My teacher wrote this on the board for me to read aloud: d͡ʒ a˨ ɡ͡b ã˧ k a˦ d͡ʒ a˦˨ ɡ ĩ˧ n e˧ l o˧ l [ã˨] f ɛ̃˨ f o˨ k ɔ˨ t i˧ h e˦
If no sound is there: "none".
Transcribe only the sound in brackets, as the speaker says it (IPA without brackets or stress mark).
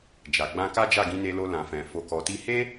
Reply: ã˨